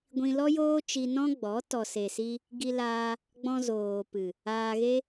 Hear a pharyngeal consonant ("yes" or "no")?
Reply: no